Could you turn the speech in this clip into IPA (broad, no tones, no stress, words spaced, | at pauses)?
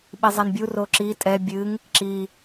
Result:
ɓizˤɛnbʲu roǁi tʼɛ bʲɨŋ | ǁi